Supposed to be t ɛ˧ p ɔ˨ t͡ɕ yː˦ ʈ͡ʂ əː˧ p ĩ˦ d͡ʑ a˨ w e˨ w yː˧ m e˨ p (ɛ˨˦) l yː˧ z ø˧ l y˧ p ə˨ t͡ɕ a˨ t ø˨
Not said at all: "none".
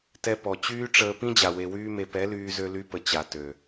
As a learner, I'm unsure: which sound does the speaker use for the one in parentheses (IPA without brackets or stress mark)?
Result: ɛ˨˦